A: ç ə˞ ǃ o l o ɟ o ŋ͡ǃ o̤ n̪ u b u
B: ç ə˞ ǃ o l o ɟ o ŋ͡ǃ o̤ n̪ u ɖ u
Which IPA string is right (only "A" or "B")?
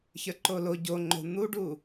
B